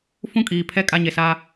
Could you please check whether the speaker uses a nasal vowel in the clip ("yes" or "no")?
yes